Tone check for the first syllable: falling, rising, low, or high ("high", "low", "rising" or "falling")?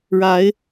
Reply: rising